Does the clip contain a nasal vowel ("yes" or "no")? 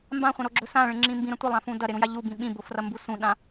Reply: yes